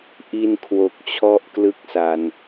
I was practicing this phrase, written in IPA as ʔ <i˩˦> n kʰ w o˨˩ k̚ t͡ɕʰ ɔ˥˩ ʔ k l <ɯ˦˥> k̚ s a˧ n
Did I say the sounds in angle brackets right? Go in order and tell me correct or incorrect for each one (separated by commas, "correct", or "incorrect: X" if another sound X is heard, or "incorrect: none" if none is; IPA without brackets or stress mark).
incorrect: i˧, incorrect: ɯ˥˩